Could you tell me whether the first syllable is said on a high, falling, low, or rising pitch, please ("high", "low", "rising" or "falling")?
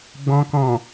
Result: low